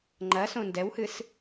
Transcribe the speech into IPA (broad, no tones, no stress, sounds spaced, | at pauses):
ŋ͡ǃ ɐ s õ n d ɛ w h ɨ s